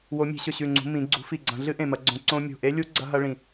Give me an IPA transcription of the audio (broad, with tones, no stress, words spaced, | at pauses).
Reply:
wo˨˦mʲe̤˨˦ɕɵ˧˩ ɕʉ˧˩ŋ͡ǀṳ˨˦ mĩ˨˦ ɡ͡ǀṳ˨˦fi˧˩ɡ͡ǀɐ̃˨˦ ɮɨ˦˥ʔẽ˧˩mɐ˨˦ɡ͡ǀõ˨˦ ǀõ˦˥ mʲo̤˧˩ʔe˦˥lʲu˦˥ ɡ͡ǀɐ˦˥ɦɐ˦˥ɭĩ˧˩